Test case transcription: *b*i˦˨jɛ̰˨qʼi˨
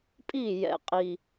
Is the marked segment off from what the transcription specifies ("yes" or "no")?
yes